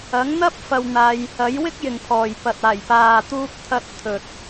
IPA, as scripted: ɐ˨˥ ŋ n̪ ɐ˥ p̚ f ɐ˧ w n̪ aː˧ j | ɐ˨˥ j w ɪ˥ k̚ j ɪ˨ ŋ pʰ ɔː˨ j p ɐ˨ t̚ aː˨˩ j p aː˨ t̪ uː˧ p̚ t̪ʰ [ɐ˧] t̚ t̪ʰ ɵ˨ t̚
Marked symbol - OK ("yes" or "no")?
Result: yes